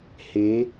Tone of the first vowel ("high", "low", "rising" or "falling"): rising